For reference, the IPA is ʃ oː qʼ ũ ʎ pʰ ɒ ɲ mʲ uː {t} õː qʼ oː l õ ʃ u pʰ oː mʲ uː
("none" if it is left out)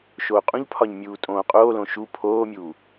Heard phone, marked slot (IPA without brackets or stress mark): tʼ